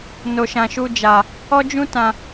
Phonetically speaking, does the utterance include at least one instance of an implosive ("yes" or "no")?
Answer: no